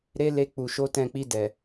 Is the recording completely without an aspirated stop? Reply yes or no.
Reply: yes